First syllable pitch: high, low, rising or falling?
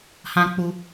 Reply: high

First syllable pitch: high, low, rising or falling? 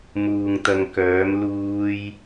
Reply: low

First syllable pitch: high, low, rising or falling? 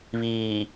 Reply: low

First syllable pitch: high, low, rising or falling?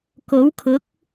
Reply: rising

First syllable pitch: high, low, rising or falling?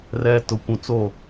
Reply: low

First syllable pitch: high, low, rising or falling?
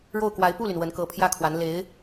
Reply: falling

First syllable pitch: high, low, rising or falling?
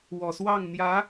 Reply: low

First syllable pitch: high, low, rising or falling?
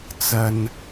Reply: low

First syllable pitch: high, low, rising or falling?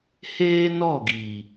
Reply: high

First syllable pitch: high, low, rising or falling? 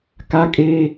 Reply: high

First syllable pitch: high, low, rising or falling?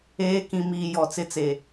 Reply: rising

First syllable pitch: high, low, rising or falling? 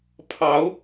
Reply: rising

